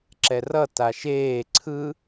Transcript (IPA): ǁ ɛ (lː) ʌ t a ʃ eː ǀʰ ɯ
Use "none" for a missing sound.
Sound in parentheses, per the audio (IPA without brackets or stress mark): r